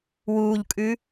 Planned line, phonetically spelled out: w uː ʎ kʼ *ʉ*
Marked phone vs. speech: correct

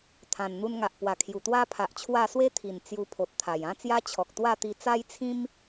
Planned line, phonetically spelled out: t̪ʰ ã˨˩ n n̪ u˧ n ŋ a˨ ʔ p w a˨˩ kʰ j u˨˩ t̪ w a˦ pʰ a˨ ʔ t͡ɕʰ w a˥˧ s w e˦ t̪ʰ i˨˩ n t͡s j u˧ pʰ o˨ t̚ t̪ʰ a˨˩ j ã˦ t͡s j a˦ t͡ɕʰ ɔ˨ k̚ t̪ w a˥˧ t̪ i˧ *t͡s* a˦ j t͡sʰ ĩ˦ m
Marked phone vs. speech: correct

